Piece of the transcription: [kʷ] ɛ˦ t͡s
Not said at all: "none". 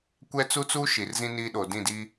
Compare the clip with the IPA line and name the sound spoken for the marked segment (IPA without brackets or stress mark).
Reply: kʷ